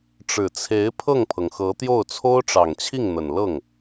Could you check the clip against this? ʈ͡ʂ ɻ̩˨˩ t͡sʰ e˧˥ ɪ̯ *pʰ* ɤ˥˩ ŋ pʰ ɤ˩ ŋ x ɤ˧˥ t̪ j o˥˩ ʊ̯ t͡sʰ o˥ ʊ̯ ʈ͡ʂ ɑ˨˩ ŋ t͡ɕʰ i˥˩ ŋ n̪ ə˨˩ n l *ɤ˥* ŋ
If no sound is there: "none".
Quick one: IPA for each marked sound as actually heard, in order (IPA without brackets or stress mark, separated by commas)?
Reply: pʰ, ɤ˥˩